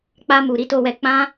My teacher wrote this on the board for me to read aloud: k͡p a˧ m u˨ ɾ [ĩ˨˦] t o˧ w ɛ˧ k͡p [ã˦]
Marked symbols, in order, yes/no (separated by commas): no, yes